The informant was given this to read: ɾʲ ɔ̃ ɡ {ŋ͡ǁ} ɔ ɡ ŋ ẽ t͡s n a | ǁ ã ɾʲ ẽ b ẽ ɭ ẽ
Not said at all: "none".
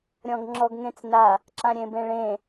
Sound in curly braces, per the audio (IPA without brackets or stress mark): ŋ͡ǁ